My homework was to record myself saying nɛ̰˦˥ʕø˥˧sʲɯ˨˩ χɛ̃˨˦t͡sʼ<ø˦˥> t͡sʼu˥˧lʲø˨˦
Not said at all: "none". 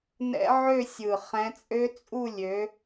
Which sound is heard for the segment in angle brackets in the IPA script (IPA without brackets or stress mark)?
ø˦˥